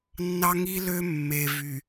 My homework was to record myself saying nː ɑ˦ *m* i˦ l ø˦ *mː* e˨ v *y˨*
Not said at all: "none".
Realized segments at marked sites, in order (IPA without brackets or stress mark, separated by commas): ŋ, mː, y˨